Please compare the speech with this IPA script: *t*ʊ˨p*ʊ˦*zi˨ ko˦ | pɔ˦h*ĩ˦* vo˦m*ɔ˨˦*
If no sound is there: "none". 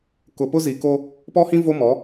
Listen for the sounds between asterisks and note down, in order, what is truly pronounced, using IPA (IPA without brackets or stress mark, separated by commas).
k, ʊ˦, ĩ˦, ɔ˨˦